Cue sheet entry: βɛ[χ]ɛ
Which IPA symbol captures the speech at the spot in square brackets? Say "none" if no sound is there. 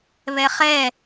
χ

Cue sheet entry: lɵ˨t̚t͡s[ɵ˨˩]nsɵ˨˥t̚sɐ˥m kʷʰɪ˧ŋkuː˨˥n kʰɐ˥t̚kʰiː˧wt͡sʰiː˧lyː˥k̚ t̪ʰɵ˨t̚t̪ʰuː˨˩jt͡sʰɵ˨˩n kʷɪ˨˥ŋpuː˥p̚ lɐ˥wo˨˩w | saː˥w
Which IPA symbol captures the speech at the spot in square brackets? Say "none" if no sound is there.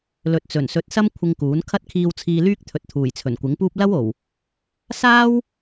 ɵ˨˩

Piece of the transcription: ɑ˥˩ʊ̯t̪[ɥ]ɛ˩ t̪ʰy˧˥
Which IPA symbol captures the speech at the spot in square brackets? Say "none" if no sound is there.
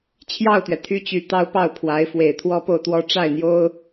ɥ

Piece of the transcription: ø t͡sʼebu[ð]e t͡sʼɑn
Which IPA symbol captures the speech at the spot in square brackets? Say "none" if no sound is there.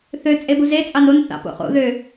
z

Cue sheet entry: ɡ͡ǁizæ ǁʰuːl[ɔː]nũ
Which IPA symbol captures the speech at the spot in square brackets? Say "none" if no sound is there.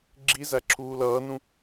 ʌː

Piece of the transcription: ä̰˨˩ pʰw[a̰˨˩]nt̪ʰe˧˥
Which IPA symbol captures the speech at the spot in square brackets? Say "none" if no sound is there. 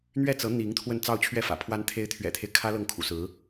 a˧˥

